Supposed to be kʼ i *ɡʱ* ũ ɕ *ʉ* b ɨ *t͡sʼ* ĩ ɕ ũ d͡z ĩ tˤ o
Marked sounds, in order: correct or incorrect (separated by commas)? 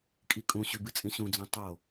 incorrect, correct, correct